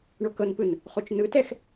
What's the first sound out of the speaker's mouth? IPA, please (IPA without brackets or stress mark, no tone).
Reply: ɳ